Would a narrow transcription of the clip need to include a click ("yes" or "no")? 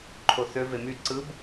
yes